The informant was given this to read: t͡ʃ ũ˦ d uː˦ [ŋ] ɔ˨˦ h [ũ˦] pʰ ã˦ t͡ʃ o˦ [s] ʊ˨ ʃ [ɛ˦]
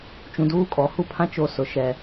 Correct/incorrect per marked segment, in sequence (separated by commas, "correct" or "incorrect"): incorrect, incorrect, correct, correct